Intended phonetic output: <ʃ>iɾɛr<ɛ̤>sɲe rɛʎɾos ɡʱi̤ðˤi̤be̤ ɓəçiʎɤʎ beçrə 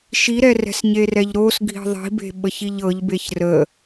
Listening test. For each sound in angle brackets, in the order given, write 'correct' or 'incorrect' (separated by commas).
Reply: correct, correct